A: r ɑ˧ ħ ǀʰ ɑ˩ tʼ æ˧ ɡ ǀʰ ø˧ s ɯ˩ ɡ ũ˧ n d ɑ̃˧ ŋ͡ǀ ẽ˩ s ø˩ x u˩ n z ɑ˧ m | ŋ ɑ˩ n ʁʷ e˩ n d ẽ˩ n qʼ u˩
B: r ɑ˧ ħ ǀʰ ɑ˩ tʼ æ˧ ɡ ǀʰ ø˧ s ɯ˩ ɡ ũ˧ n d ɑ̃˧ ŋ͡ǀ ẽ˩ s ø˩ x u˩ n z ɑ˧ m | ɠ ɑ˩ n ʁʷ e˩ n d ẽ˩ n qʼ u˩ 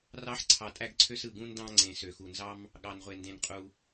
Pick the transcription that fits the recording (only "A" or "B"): B